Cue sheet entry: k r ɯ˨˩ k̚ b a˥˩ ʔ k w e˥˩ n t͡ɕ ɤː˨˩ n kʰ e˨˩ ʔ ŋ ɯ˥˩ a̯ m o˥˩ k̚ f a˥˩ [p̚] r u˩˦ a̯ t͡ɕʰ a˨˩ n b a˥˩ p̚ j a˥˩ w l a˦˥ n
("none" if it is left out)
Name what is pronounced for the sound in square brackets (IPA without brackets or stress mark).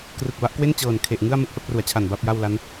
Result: p̚